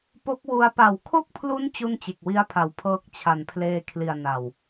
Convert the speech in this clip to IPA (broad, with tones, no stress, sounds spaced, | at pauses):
p o˦˥ k̚ w u˧ a̯ p a˩˦ w kʰ o˥˩ k̚ pʰ l u˦˥ n t͡ɕ u˥˩ n t͡ɕ e˨˩ k̚ w i˦˥ a̯ pʰ a˩˦ w pʰ ɤː˦˥ k̚ t͡ɕʰ a˨˩ n pʰ l eː˧ kʰ l i˨˩ a̯ n a˨˩ w